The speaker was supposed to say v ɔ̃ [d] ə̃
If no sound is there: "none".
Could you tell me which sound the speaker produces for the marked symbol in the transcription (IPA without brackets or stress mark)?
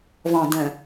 d